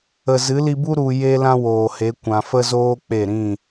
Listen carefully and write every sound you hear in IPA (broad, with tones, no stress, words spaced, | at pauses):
ə˨zɨ˨˦li˧bu˦ ɾu˧ je˦ lã˦woː˨he˨˦ kʷã˨fə˦zoː˦ k͡pe˦˨ ɾĩ˦˨